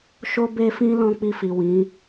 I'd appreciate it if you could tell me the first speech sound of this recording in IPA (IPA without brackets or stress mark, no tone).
ʃ